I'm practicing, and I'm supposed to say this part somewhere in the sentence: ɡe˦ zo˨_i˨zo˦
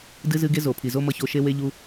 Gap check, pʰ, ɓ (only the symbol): pʰ